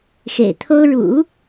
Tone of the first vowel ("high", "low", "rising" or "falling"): low